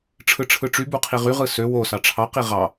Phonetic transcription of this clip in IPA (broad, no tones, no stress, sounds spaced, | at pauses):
ʈ͡ʂʰ ɯ ʈ͡ʂʰ ɯ ʈ͡ʂ y b u qʰ i ʁ y ʁ ɯ s ø w o s ɑ ʈ͡ʂʰ ɑ q i ʁ ɑ